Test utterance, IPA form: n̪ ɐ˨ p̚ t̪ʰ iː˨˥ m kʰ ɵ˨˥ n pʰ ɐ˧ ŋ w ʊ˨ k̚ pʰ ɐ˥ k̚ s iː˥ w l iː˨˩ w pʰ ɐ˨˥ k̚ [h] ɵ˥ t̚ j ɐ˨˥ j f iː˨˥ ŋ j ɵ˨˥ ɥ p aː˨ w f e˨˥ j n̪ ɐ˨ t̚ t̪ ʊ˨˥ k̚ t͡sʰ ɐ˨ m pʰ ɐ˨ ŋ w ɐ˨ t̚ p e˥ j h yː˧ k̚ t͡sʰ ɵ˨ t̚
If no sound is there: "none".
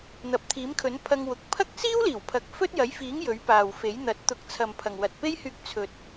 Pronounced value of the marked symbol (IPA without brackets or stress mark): f